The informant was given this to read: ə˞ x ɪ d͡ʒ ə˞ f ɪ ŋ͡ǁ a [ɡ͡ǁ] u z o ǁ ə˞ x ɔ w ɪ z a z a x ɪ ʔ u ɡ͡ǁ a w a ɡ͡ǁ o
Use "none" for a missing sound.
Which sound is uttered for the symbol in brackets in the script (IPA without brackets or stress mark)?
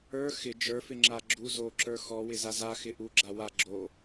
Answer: ɡ͡ǁ